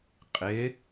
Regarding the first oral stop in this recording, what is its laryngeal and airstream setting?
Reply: ejective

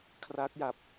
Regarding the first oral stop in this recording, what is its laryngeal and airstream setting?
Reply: aspirated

